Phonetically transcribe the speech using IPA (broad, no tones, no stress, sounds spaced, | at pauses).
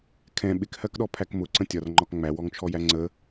kʰ ɛ̃ ɓ ɪ k h ɜ k ɗ ɔ pʰ æ k m ʊ ǀ ə̃ tʲ ɒ r ŋ͡ǃ ɒ k ŋ͡m æ w ɔ ŋ t͡ʃʰ ɔ j æ ŋ͡ǀ ə